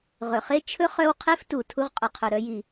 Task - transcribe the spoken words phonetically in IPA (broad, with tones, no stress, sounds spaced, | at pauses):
ʁ ɵ˩ χ e˥ t͡ʃʰ ɵ˥ χ œ˥ w qʰ e˥ f t u˩ tʰ u˥ ʁ qʼ ʊ˩ qʰ ɵ˩ ɾ œ˥ j i˩